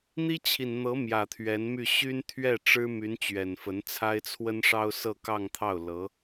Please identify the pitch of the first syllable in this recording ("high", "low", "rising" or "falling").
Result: high